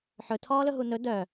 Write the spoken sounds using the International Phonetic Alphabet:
ħ ɵ tʰ ɔː l ɵ ɦ u n ɵ d œ

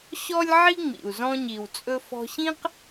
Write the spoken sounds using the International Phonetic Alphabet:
ɕ ɔ˥ lʲ ʕ i˥ ŋ͡m ḭ˩ u̯ z ɔ̃˧ ɲ i˩ w t͡sʼ ɵ˧ f ɔ̤˧ ɕ ĩ˥ q

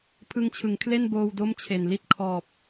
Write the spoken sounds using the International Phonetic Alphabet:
pʰ ɯ˧ ŋ t͡ɕʰ ɯ˩˦ ŋ kʰ l e˥˩ n b oː˧ w d o˥˩ m t͡ɕʰ e˨˩ n l i˦˥ t̚ kʰ ɔː˨˩ p̚

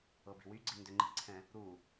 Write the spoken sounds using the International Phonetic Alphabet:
ɤ b i̤ w y ɡ͡ǀ i n d ʏ ŋ͡ǃ i̤ ǀʰ ɛ̃ | ɾ u

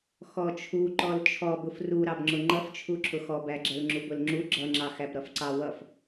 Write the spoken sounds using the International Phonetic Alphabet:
x ɔ t͡ʃʰ u ǃ ɔ l t͡ʃʰ ɔ b ʊ f r u ɾ ɑ b ŋ͡ǁ ʊ ŋ͡ǃ ʌ f t͡ʃʰ u ǁʰ ʊ x ɔ b æ ɡ͡ǁ ɛ l ŋ͡ǁ u b ʊ l ŋ͡ǁ u ɡ͡ǁ ʌ ŋ͡ǁ ɑ x æ b ɾ ʌ f ǀ ɑ w ʌ f

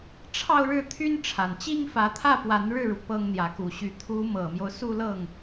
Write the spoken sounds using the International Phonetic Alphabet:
ʈ͡ʂʰ ɑ˥˧ ʊ̯ ɻ ɻ̩˥˩ t̪ʰ y˥ n ʈ͡ʂʰ a˨˩ n t͡ɕ i˥ ŋ f ä˧˥ t̪ʰ ä˥˩ p w a˧˥ n ɻ ɻ̩˥˩ ɻ u˩ p ɤ˥ ŋ n̪ j ä˧˥ k u˧˥ ɕ y˧˥ t̪ʰ u˧˥ m ɤ˨˩ m j o˦ ʊ̯ s u˥˧ l ɤ˥˩ ŋ

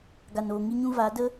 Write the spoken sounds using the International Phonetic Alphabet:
ɡ a˨ n oː˨ ŋ i˧ ɲ ũ˧ v a˨˦ d ə˦

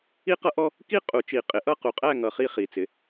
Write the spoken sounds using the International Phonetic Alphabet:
i˦ q ʌ˦ ʔ ɔ˦ | k i˥˨ qʼ u˨˩˦ t͡ʃ i˨˩ qʼ ɪ˨˩˦ ʔ ʌ˥˨ q u˨˩ qʼ æ˥˨ ŋ ʌ˨˦ χ i˦ χ i˨˩ t͡s ɪ˨˦

